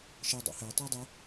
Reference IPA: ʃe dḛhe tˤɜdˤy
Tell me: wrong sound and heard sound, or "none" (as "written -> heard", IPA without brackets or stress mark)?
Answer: d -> dˤ